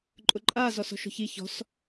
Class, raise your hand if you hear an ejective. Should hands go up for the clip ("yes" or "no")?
yes